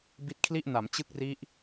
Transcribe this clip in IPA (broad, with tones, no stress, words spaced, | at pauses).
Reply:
bi˦˥t̚kʰli˥˩ʔna˩˦m t͡ɕɯ˥˩k̚ri˦˥ʔ